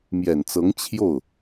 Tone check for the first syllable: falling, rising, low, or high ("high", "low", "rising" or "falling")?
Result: low